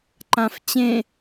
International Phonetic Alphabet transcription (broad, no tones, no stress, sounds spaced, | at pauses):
ǃ ã f t͡ɕ ẽ